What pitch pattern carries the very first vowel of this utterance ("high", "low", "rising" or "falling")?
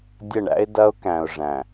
falling